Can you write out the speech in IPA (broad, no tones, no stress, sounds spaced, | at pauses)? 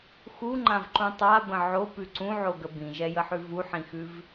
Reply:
x u ŋ͡ǃ ã v ǃ ũ tˤ a b ə̃ ʕ o p ʉ ǀ ũ ʕ o ɡ ə b ĩ ʒ ɛ j ə ħ ʉ v u ħ ĩ x ʉ v